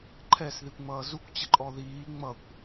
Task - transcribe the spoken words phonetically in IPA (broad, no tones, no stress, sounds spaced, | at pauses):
ǃʰ ɛ s ð i kʷ ŋ͡m ʌː z u kʷ t͡ɕ ə ǃʼ ɔ ð iː ŋ͡m ʌ kʷ